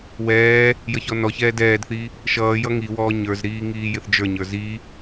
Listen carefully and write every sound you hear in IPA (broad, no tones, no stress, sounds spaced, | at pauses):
w ɛː | j ʌ ç ɔ n ɔ ç ɛː d ɛː d θ i | ʃ ʌː j ʌ ŋ i w ɔː ɲ ə˞ z ɾ iː ŋ iː j ɪ θ d͡ʒ ə˞ ɲ ə˞ z i